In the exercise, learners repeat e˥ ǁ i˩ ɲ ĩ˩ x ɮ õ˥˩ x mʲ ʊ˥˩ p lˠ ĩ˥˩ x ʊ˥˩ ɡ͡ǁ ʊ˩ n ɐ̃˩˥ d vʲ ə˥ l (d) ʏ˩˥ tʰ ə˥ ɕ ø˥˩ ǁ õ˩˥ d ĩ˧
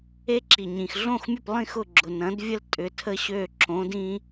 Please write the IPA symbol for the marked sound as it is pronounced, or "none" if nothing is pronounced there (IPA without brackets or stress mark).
tʼ